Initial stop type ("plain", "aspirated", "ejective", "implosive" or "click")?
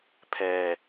aspirated